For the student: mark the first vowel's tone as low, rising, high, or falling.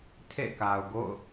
falling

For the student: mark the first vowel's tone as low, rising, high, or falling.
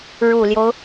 low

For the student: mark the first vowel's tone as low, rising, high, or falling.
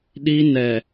high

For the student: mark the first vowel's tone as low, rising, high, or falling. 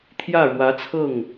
falling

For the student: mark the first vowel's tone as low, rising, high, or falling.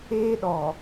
high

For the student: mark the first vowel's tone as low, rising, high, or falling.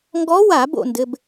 rising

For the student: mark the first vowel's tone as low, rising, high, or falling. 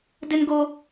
high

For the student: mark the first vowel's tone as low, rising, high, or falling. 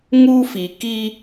high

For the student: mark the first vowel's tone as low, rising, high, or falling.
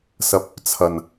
low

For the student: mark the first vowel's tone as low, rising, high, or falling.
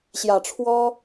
low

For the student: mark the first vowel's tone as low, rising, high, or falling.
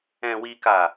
low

